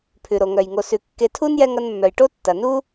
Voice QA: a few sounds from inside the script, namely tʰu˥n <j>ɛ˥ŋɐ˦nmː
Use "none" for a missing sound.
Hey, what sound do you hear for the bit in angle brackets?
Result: j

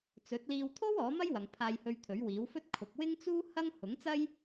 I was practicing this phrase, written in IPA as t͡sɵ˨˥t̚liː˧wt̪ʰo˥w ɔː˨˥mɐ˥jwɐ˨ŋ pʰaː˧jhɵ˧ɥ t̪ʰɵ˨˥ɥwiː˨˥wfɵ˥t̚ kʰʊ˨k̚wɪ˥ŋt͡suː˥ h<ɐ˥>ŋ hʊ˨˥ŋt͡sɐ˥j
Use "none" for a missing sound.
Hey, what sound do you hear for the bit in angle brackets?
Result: ɐ˥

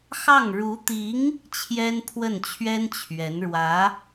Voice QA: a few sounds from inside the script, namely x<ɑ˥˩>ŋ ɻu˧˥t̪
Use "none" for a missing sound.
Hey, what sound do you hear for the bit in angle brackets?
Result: ɑ˥˩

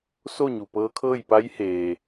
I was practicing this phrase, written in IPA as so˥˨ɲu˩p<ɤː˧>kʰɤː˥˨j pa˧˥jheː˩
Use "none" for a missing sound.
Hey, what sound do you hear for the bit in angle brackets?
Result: ɤː˧˥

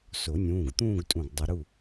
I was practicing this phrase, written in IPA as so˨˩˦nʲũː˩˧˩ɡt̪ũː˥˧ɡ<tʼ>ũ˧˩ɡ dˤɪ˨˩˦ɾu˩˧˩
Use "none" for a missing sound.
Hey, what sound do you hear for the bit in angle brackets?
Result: tʼ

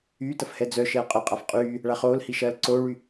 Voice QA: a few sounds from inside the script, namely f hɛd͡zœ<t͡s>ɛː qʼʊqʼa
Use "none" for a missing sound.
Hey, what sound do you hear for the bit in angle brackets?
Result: ʃ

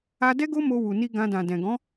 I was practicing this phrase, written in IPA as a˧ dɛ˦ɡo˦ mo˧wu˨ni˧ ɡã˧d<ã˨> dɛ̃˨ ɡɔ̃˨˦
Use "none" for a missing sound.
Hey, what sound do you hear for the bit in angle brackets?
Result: ã˨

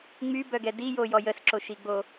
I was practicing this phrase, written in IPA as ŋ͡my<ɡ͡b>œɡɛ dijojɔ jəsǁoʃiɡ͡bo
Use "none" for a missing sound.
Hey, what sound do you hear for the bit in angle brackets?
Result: b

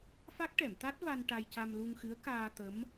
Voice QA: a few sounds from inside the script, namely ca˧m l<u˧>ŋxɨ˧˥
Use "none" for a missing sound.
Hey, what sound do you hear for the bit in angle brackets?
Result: u˧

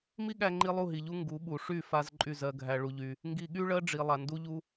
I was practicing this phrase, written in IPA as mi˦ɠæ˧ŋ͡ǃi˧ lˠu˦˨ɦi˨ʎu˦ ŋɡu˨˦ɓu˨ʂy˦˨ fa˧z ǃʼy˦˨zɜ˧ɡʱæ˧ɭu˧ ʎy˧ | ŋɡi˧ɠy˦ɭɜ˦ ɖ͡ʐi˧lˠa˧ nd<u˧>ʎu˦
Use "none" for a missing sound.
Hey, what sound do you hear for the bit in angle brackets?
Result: u˦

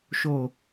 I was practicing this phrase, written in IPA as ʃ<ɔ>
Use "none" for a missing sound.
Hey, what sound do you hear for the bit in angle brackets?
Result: o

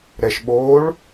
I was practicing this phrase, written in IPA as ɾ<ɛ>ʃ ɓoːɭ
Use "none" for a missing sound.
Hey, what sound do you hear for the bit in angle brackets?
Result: ɛ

